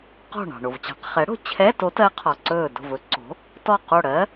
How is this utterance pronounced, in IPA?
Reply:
q ɔ̤˧˩ ɳ ɑ̤˩ ɳ o˩ v t͡ɕ ɑ̤˩˥ q χ ɛ˩˥ ɽ o̤˩ t͡ɕʰ ɛ˧˥˧ t o˧˥ t ɜ˧˥ qʰ ɒ˩ ǀ ɵː˧˩ d o̤˧˩ v ɵ˩˥ ǀ o̤˩˥ | t ɔ˧˩ q o˧˩ ɽ ɜ˧˥

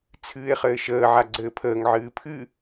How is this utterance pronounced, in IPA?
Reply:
t͡sʰ ɨː e̯ χ ɘː ʃ əː ʕ a ɡ͡ǀ ɘː pʰ əː ŋ ʕ ɨː pʰ ɨ

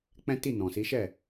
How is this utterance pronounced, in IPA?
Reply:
k͡p ɛ̃˦ t i˦˨ n ɔ̃˨ s i˨˦ ʃ ɛ˦˨

